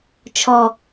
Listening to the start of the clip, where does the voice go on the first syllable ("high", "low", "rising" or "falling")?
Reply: low